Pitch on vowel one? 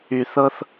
high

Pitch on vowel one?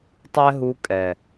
high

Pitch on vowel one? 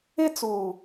high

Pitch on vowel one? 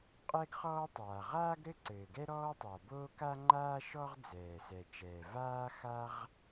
high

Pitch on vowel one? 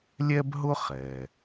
high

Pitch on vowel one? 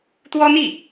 high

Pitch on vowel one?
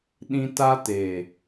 high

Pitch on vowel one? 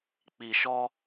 low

